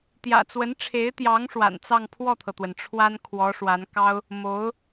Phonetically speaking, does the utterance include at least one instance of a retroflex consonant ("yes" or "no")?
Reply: yes